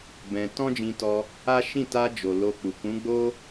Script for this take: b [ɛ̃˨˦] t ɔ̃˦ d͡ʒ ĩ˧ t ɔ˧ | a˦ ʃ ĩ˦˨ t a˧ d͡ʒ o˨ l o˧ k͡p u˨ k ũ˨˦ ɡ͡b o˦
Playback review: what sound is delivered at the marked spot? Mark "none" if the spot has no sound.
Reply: ɛ̃˧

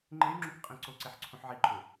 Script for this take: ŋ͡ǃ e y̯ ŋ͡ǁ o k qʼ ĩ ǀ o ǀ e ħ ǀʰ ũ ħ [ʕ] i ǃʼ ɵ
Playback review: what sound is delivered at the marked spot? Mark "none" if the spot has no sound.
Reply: ʕ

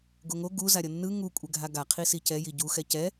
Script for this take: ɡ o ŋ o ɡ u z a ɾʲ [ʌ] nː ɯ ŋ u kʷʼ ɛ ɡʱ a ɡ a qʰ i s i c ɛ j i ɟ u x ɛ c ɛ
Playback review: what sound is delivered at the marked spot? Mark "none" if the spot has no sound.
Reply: ʌ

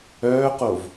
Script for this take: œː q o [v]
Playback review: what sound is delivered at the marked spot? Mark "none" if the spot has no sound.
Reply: v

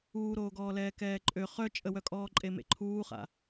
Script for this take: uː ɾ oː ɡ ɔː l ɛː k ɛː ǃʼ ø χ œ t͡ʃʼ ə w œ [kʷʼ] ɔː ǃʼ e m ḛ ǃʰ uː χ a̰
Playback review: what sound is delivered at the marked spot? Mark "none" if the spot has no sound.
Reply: kʼ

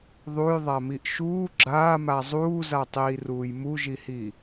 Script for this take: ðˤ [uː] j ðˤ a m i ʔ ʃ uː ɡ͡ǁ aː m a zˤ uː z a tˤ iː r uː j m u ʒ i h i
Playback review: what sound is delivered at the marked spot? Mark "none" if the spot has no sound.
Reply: u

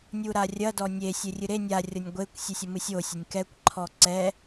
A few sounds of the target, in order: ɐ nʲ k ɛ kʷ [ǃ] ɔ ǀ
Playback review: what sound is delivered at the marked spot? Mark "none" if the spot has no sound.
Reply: ǃʰ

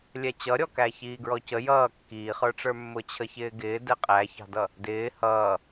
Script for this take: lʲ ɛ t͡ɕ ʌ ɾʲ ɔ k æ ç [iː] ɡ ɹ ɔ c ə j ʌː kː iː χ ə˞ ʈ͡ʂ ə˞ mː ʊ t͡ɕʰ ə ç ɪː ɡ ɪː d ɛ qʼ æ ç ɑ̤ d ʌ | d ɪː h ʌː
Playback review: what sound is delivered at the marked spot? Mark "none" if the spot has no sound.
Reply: iː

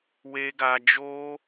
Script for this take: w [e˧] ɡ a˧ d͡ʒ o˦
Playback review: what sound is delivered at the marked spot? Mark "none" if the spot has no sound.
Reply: e˧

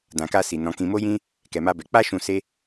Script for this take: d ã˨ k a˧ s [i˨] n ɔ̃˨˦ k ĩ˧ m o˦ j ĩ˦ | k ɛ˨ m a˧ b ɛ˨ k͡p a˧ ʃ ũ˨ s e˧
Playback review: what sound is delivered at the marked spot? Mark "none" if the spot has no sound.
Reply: i˨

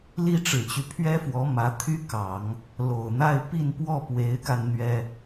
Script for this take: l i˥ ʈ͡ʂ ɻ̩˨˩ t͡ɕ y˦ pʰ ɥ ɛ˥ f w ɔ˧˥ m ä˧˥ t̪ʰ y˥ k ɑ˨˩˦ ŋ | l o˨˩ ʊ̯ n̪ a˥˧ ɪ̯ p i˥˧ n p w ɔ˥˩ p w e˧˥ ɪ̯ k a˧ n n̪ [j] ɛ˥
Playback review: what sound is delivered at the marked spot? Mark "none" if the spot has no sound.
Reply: ɥ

